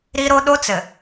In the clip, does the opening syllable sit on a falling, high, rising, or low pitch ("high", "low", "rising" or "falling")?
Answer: high